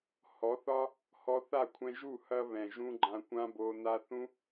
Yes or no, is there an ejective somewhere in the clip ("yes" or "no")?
no